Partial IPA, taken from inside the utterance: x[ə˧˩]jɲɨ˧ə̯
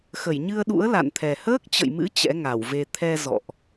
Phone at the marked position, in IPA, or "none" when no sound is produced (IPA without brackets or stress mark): ə˧˩